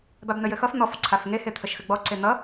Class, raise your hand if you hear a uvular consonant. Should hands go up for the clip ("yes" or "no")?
no